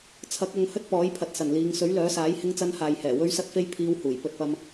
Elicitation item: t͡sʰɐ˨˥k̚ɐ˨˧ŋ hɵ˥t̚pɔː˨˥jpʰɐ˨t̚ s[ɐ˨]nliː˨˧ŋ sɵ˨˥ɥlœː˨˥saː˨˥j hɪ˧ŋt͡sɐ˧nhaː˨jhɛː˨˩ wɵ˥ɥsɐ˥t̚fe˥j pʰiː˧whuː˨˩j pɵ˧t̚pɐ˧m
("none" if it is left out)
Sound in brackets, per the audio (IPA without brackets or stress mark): ɐ˨˩